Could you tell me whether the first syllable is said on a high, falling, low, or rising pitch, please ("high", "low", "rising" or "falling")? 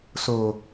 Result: low